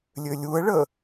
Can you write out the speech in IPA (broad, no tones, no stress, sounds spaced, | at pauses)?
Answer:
lʲ ø lʲ u ə̯ ɭ ə